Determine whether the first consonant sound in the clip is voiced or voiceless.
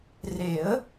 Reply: voiced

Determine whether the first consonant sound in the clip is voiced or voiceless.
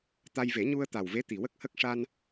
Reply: voiceless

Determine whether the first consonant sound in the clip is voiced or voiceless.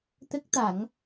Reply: voiceless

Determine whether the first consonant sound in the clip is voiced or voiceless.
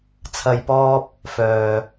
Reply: voiceless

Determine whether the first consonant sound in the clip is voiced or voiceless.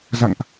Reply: voiced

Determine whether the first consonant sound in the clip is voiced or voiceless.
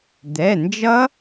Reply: voiced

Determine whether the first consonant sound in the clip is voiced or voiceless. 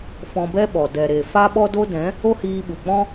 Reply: voiceless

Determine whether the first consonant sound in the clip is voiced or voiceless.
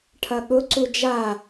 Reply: voiceless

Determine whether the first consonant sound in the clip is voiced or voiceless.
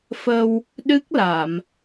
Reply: voiceless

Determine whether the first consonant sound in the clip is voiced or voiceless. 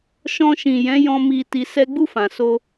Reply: voiceless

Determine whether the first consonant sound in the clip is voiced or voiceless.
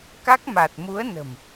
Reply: voiceless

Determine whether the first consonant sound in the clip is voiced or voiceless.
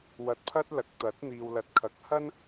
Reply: voiced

